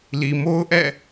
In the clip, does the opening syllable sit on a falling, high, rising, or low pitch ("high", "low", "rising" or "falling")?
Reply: low